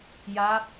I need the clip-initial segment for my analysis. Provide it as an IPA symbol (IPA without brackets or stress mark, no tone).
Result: j